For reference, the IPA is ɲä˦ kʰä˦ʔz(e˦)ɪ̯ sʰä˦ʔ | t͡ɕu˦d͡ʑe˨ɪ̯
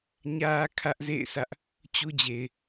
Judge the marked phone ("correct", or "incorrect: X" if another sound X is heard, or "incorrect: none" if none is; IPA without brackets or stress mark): incorrect: ḛ˦˨